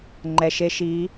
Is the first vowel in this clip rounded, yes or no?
no